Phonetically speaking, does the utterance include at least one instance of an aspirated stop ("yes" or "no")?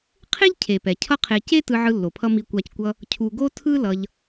yes